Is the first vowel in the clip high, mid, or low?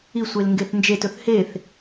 high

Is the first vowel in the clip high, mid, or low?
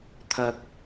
low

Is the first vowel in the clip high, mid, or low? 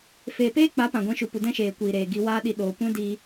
mid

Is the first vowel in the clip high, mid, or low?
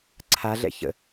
low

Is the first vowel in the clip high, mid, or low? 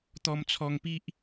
mid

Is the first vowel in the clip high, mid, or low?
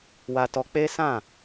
low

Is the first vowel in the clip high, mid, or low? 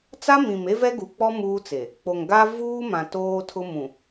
low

